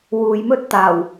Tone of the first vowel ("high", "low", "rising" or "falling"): low